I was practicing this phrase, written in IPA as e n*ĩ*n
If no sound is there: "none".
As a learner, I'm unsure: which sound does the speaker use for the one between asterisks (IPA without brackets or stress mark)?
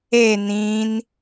ĩ